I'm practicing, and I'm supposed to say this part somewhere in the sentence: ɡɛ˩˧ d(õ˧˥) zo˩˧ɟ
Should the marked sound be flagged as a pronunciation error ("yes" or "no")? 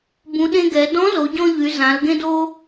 yes